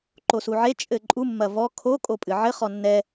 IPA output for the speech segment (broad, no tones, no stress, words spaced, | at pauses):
ǃosuʕe t͡ʃʼɘǃʼu mːɐvɔ kʰo kʼopʼɨʕɘ χɔnːɛ